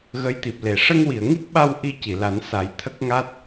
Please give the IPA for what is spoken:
ɣ ə˧˥ j t̪ i˨˩ p̚ l e˨˩˨ ʂ ə˧ ŋ w i˨˩˨ ə̯ ŋ i˦˥ k̚ ɓ a˧ w ʔ i˧ c i˨˩˨ l a˨˩˦ n s a˨˩˦ j t̪ʰ ə˦˥ k̚ ŋ a˦˥ t̚

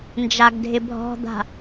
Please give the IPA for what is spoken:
n d͡ʒ a ɡ dʱ ɪ bʱ ɔ̤ d̪ a̤

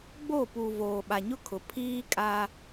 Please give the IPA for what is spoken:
ɡ͡b o˦˨ p u˨ v oː˨ ɓ a˨ ɲ ʊ˦ kʰ ʊ˨ pʰ iː˦ kʼ a˦

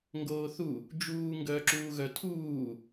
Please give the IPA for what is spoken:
ŋ ɡ oː θ u | d͡ʒ uː ŋ ɡ œː ǁ uː ɣ œ tʰ uː

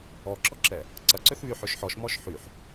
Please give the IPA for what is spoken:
ɔ ǁ ɔ ǁ ɛ | ǀ ɐ ǀ ø θ β y ħ ø ʃ ħ ɔ ʃ m ɔ ʃ ħ y ħ

